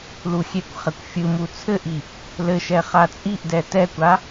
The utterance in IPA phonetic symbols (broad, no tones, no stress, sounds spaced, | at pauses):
l u xʲ e kʷ χ ɘ kʷ fʲ ɯ m u t͡sʰ ɘ ʔ i | l ɘ ʃ ɛ χ a t͡sʼ i ʔ d ɛ t ɛ kʷ a